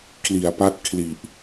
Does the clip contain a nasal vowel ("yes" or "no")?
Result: no